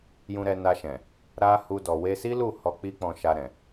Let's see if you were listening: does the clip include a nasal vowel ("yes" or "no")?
yes